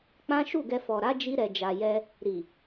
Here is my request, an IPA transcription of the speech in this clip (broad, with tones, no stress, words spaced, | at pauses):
k͡pã˦ʃu˦˨ɡɛ˧ fɔ˨ɾa˨˦ d͡ʒi˦ɾɛ˧d͡ʒa˧ jɛ˧ | ɾi˨